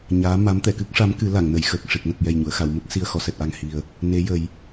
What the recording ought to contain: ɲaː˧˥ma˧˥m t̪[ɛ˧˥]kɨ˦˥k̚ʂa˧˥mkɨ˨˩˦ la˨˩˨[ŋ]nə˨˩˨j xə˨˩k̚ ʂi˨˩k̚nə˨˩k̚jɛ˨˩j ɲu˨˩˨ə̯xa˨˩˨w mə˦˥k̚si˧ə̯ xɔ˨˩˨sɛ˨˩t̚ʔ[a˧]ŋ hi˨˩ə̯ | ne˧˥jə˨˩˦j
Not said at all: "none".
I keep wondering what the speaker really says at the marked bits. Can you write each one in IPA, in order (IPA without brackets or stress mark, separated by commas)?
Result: ɛ˨˩˨, ŋ, a˨˩